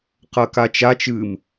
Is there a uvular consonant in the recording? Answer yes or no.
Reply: yes